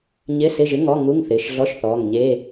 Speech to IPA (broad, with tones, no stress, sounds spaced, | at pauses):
ɲ ɪ˧˥˧ s ɪ˧˥˧ ʒ ɪ˧˥˧ ŋ ɔ˧˥˧ ŋ u˧˥˧ ŋ θ ɪː˩˧˩ ʃ ɮ ɔ˧˥˧ ʃ θ ɔː˩˧˩ ŋ ɲ e˧˥˧